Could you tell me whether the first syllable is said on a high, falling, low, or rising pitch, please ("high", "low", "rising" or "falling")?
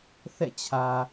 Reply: falling